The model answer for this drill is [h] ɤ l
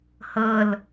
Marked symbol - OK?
yes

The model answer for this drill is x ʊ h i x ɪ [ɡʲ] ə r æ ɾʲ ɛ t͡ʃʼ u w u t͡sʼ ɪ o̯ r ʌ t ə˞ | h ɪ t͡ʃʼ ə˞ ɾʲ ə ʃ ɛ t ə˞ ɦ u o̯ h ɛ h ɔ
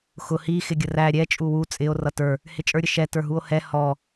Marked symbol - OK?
yes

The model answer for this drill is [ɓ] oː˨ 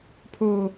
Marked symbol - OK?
no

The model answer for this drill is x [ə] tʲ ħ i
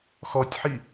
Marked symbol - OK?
no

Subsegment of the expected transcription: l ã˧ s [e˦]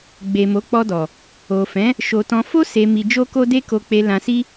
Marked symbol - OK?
no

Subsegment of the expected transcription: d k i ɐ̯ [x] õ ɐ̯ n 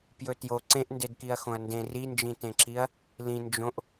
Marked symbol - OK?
yes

